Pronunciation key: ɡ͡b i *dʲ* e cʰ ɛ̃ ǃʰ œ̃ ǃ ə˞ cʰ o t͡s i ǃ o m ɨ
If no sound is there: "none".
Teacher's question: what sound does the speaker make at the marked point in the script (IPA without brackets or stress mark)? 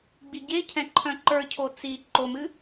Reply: ɟ